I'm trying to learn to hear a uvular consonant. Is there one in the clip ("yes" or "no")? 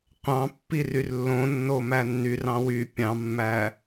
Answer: yes